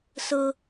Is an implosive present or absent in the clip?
absent